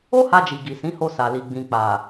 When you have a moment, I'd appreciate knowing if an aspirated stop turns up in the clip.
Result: no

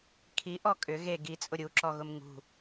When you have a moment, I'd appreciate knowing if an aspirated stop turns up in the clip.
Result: yes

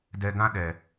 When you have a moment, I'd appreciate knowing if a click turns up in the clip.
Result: no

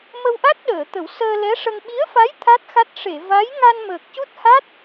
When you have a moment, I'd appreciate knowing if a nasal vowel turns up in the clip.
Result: no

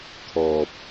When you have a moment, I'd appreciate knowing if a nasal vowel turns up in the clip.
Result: no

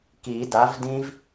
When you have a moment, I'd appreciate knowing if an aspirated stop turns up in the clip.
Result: no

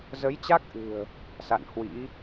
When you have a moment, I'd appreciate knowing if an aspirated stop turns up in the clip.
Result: no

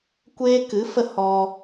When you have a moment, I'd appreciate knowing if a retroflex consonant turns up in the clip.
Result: no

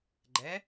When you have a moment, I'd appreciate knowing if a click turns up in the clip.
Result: yes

